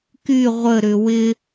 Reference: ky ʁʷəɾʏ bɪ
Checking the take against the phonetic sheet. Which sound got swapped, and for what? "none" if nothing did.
b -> w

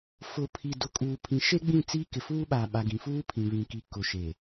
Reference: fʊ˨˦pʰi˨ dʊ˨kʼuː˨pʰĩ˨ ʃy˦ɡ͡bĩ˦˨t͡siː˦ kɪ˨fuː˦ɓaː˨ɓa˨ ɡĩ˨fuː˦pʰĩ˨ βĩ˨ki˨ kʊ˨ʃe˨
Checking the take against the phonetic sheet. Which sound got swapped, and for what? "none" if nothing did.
y˦ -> e˦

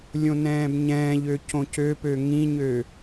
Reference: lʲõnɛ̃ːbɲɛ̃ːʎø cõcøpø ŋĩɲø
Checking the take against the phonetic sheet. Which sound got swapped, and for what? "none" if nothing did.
none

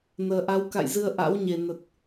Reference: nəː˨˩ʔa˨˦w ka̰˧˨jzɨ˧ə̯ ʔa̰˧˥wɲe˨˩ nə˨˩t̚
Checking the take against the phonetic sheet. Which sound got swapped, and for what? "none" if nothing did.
none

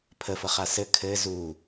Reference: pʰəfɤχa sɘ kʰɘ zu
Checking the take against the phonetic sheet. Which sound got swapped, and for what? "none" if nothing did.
none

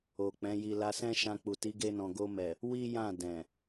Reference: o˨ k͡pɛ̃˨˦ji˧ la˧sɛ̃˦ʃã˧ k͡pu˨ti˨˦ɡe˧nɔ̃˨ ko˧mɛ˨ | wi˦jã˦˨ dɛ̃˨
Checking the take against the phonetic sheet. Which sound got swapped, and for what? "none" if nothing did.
k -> ɡ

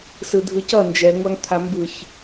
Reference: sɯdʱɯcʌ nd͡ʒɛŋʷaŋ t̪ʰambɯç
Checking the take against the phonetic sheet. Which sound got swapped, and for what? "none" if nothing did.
none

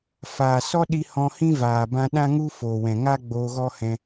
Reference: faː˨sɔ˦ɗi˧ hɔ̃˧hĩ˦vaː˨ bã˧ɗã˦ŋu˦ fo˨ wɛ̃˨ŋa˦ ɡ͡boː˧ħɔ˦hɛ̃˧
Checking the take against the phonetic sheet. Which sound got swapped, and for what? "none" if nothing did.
ħ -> ɣ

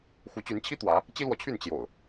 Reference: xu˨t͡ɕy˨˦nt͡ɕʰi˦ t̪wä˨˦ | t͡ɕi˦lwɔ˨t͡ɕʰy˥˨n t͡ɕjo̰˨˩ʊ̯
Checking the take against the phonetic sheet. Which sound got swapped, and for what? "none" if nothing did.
u˨ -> u˨˦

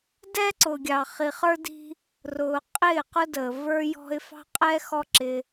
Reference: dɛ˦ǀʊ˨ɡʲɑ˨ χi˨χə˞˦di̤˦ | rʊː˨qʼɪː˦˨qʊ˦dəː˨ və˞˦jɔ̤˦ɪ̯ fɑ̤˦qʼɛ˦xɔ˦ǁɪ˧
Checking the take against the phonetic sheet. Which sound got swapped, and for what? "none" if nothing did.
none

